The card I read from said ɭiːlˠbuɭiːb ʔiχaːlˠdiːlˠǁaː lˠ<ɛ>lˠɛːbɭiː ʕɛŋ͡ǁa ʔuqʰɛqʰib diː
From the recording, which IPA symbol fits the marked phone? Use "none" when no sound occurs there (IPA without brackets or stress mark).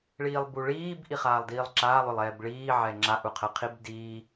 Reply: ʏ